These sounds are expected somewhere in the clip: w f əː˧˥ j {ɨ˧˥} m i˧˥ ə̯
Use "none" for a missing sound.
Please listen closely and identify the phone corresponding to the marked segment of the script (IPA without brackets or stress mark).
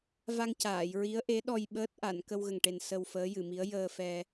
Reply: ɨ˨˩˨